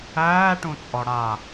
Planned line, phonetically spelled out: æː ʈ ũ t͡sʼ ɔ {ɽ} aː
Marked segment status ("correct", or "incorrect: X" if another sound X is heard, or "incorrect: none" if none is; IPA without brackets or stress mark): correct